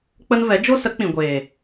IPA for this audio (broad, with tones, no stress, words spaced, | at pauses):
k͡pə˦n vɛ˨˦d͡ʒo˦ sə˨˦ k͡pĩ˨ɡʷeː˨